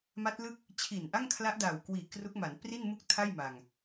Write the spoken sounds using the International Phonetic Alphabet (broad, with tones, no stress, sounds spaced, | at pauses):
m a˦˥ t̚ l ɯ˥˩ k̚ | t͡ɕʰ i˨˩ n ʔ a˥˩ ŋ kʰ l a˦˥ ʔ d aː˨˩ w k w iː˨˩ k r u˦˥ k̚ m a˩˦ n p r i˥˩ n m u˥˩ k̚ tʰ a˥˩ j m a˧ ŋ